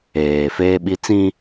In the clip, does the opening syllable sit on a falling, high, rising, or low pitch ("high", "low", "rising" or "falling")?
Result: low